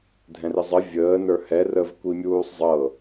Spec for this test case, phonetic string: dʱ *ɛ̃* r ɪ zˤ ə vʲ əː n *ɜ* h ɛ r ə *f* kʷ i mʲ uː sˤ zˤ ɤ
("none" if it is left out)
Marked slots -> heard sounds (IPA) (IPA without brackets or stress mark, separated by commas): ɛ̃, ə˞, v